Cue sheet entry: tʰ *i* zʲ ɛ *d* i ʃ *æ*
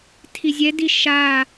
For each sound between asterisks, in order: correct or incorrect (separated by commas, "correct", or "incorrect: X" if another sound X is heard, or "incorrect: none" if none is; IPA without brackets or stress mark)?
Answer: correct, correct, incorrect: a